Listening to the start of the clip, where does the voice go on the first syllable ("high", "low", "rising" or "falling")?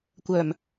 low